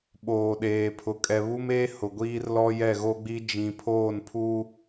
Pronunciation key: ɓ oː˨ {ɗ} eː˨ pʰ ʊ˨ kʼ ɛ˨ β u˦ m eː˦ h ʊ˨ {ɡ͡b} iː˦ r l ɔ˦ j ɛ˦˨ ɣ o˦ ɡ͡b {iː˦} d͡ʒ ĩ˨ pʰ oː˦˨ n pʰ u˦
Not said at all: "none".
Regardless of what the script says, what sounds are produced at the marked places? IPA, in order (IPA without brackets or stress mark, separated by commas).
ɗ, ɡʷ, i˦